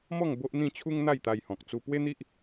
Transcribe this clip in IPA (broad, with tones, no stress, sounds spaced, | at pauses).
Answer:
m ɔ˥˧ ŋ b o˦ ʔ n̪ ĩ˥˧ t͡ɕʰ u˦ ŋ n̪ a˥˧ j t̪ a˧ j h ɔ̃˨ k̚ t͡s u˧ p w e˦ n̪ i˦ ʔ